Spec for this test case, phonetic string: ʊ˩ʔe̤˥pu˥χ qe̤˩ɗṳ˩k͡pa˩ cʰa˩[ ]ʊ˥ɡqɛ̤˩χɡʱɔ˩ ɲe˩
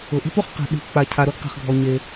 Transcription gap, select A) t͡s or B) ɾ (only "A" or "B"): B